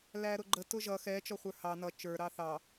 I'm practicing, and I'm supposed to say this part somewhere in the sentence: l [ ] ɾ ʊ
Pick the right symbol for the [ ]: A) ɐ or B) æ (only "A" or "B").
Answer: B